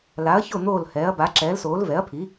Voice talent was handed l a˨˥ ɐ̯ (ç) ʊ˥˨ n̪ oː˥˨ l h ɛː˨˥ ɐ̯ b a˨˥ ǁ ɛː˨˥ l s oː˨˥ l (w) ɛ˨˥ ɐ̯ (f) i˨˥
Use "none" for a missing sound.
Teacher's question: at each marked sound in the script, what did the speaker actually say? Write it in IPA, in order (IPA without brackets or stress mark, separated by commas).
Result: ç, v, pʰ